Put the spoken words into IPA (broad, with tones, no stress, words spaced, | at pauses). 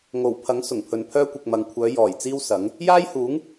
ŋo˨˩wpʰɐ˨˥ŋ sʊ˨˩ŋpʰɵ˨npʰœː˥kʷɪ˨k̚ mɐ˨ŋkʷʰœː˨˧ jɔː˨˩j t͡siː˥wsɐ˨˥ŋ | jaː˥jhuː˨˥ŋ